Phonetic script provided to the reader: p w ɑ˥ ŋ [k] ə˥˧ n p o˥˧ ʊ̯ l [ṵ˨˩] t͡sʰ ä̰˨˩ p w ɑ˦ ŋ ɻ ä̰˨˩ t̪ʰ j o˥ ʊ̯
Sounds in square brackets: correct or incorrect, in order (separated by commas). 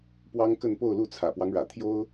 correct, incorrect